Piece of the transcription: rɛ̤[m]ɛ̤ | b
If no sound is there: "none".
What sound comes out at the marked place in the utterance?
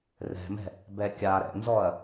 m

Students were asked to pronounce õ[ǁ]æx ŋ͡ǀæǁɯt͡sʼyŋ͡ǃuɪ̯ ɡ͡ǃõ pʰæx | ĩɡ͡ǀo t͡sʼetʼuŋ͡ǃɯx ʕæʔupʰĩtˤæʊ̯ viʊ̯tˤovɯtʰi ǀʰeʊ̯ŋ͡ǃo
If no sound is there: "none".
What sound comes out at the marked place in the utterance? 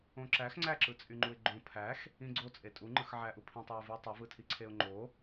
ǁ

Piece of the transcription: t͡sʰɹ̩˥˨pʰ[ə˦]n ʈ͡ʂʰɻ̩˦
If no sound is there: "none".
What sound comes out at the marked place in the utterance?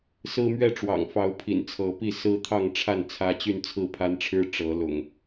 a˦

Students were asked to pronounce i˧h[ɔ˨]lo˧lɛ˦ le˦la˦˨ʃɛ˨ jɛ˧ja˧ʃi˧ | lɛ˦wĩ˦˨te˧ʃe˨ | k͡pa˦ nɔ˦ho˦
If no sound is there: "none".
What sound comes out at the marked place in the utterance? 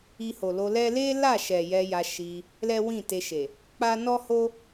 o˨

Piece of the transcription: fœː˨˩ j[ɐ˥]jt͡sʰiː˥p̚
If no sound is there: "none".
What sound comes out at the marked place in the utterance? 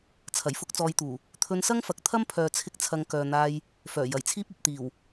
ɐ˨˩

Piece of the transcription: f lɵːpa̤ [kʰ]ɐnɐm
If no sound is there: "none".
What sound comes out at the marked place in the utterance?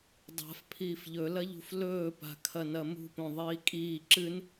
kʰ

